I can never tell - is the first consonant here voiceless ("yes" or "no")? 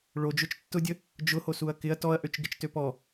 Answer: no